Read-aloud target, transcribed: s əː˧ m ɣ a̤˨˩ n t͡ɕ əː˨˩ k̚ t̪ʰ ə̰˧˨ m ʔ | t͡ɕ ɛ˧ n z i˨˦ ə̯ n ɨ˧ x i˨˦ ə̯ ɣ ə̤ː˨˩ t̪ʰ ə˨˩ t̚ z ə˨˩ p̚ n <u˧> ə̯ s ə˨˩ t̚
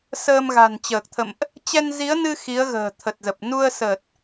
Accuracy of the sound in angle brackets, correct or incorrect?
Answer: correct